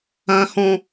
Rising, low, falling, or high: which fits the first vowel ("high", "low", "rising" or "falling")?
low